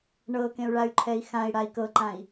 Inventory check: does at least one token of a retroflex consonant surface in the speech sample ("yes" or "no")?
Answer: yes